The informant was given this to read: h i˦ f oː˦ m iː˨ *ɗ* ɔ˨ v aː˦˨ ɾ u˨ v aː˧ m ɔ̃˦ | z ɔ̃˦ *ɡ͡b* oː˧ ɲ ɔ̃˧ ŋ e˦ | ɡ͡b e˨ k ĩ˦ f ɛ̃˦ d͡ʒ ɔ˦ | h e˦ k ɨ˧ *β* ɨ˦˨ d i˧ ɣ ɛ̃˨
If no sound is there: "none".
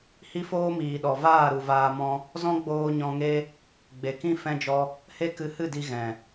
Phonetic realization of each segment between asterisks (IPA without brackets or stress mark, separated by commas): ɗ, ɡ͡b, h